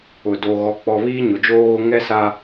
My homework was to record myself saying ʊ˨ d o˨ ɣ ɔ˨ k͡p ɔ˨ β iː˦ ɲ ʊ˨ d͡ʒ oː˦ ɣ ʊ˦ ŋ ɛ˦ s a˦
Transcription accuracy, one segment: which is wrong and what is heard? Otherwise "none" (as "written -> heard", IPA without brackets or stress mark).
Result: none